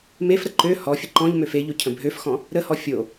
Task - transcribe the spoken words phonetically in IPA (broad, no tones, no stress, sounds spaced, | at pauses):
m e f ɾ ə ǃ ø h ɔ fʲ ə ǃ ɔ̃ ʎ m ø f e ʎ o cʰ ə̃ bʱ ø f x ɔ̃ | ɾ ə h ɔ fʲ o